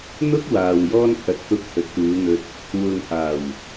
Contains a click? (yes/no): no